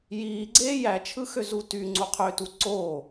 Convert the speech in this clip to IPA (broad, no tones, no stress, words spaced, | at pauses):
jiː ɡ͡ǀeːjæt͡ʃʰɯ xøzutyŋ͡ǀu qʰøtu ǀo